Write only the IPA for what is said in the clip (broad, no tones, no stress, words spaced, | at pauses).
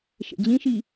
ʃḛd͡ʑĩʃi